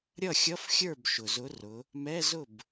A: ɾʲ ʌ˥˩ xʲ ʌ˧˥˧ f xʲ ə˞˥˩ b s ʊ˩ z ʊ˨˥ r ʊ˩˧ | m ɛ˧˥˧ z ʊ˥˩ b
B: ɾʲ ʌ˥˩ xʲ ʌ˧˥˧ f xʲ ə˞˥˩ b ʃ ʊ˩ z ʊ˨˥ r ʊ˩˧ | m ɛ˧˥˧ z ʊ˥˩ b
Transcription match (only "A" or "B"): B